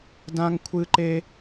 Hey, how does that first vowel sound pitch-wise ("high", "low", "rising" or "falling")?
high